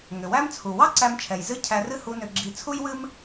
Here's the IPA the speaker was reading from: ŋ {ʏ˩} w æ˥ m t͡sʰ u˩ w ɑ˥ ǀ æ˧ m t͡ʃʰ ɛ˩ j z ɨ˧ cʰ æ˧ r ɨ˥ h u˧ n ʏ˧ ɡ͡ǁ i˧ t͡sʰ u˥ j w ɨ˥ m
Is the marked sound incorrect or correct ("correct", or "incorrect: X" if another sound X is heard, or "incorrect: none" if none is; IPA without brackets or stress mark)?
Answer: correct